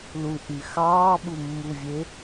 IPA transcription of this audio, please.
l u ʔ y x ɑː ɓ u mː u vʲ e

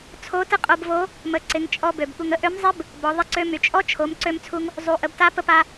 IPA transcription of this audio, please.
t͡sʰ o˧˥ t ə˥ qʼ o˧ b v o˧˥ | m ə˩˧ ǀ ɪ˩˧ ŋ t͡ʃʼ ɔ˧ b ø˩ b ɠ u˩ ŋ ə˥ ʔ ø˧˥ m zˤ ɪ˥ b | b ɔ˩˧ ðˤ ɪ˧ ǀ ø˧ m y˩ t͡ʃʼ ɔ˥ t͡ʃʰ o˩˧ m ǀ ø˧ m t͡sʰ u˧ ŋ | zˤ u˩˧ ʔ ə˩˧ b t a˧˥ p ə˧ p a˧

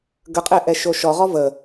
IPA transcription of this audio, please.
ɡ ə qʼ ɛ ʔ ɛ ʃ o ʃ ɔ ʁ ɔ v ə

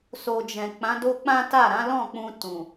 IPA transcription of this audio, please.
s o˨ d͡ʒ ɛ̃˨ k͡p ã˨˦ d o˦ k͡p ã˦ t a˦˨ ɾ ã˨˦ l ɔ̃˦˨ k͡p ũ˧ t ũ˨

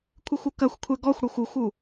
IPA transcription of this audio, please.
kʷʰ ɨ xʷ u k ɐ xʷ kʷʰ ɛ ɡ ɔ xʷ ɽ ɔ xʷ u xʷ u

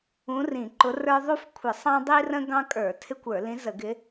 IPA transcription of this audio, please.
ũ˧˥ r ĩ˧˩˧ ǃ ʊ˧˥ r ə˞˥ ðˤ u˥ f kʷʰ ɪ˧˩˧ sˤ ɑ̃˥ dˤ i˥ r ə̃˥ ɡ ɑ̃˥ kʼ ə˞˧˩˧ tʰ ɪ˥ kʷ ə˞˧˩˧ l ĩ˧˥ z ə˧˩˧ ɡ ɪ˧˥

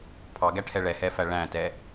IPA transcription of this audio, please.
pʰ ɑ ɡ æ ʈʰ ɛ ɭ ɛ h ɛ f æ ɭ æ̃ t ɛ

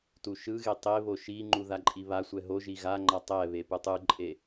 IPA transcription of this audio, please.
t u ʃ ɯ ɣ e tˤ e β o ʃ i ŋ͡ǃ u ð a ǃʼ i β a sʷ ɛ ɦ o ʒ i ɣ a ŋ͡ǃ a tˤ ɛ β e p ɯ tˤ ɯ ǃʼ e

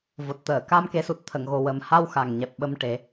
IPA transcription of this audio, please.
v o˨˩ t̚ t̪ əː˨˩˨ k a˧ m k e˨˩˦ s u˨˩ t̚ t̪ʰ ə˨˩˨ ŋ ɣ o˨˩ w ə˨˩ m h a˧ w x a˨˩ ŋ ɲ ɛ˨˩ p̚ ɓ ə˧ m ʈ e˨˩˦

